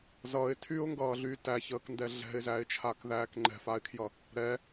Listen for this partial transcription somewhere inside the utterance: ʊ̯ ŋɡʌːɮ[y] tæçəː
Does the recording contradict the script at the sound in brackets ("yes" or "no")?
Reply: no